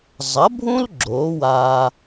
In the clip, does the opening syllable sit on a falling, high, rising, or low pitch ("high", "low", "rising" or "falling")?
rising